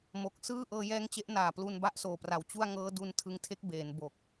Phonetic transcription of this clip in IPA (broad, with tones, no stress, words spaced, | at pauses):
mo˨˩k̚ sɯː˥˩ ʔɤː˧jɛː˦˥ŋt͡ɕe˦˥ʔ naː˨˩plu˧n ba˦˥ʔsoː˨˩pra˩˦w t͡ɕu˥˩a̯ ŋɤː˦˥du˧n tʰɯ˧ŋtʰe˦˥k̚beː˩˦n bo˨˩k̚